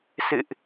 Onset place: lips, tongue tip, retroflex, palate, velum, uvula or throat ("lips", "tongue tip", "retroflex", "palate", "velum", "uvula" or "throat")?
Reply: tongue tip